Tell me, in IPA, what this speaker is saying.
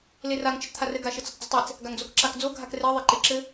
l e r a ŋ t͡ʃ ɘ t͡s t̪ʰ a r ɘ ɡ a ʃ ɘ t͡s ə tˤ d͡z ə tˤ e t͡s | ɡ a ŋ d͡z o k ǁ a k d͡z o ɡʱ a k r e ðˤ e ǃ e ǁ ɘ

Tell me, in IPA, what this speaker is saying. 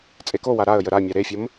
t͡sʼ e k o w a ɾ a ə̯ j ə ɾ a mʲ a ɾ e fʲ ə m

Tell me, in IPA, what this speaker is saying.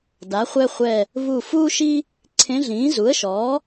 d a˩˥ χʷ ɛ˥ χʷ ɛ˦˨ | β u˦˨ f uː˥ ʃ i˥ | ǀʰ ẽ˧˥ ɮ ĩː˩˥ z u˩˥ ə̯ ʃ ɔː˩˥

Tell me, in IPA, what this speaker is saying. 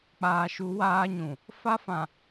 k͡p aː˨ ʃ u˨˦ w aː˦ ɲ ũ˨ | f a˦ f ã˨

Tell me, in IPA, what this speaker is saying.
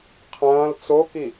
qʰ ɐ̃ː l t͡s o k i

